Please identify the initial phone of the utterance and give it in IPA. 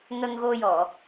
ŋ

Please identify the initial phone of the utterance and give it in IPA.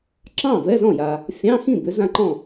ǁ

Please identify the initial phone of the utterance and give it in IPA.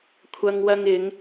kʷʰ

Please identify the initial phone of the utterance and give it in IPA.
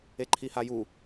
e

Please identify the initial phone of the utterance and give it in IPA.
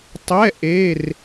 tˤ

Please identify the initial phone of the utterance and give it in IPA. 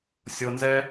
sʲ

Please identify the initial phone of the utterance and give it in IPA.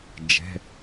d͡ʒ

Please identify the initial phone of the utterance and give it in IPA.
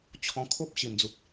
t͡ɕʰ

